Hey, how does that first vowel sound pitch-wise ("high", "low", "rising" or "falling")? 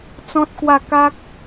high